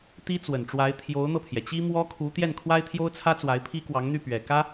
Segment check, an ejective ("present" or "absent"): absent